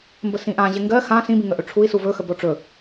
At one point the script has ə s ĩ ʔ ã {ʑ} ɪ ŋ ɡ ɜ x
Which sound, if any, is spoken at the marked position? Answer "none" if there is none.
ʑ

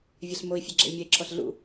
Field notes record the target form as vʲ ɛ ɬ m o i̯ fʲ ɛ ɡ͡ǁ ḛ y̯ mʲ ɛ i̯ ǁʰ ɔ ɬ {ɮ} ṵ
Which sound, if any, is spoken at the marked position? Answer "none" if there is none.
ɮ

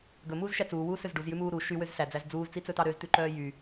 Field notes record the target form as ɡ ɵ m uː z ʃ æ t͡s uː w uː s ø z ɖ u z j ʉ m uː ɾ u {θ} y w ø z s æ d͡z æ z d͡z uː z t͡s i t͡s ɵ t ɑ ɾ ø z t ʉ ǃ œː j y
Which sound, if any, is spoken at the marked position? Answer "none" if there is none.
ʃ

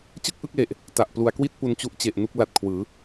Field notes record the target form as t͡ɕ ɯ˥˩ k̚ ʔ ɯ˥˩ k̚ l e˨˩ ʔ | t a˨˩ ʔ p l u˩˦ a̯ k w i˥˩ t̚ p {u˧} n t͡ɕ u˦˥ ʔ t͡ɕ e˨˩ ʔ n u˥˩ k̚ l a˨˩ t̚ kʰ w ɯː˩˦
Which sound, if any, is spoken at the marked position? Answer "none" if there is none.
u˧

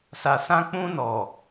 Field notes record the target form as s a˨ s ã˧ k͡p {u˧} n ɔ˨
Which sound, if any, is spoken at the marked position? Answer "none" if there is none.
ũ˧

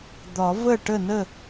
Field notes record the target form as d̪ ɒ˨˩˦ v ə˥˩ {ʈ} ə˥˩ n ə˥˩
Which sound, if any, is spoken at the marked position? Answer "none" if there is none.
ʈ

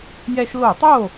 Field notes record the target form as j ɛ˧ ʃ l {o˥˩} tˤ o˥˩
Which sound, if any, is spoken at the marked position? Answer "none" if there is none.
o˧˩˧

